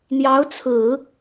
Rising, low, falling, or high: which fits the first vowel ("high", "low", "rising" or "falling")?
rising